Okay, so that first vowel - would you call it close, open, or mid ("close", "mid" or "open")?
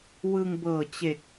close